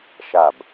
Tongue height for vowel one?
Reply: low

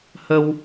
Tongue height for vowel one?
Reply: mid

